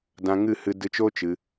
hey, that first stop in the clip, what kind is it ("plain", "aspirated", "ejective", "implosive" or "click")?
plain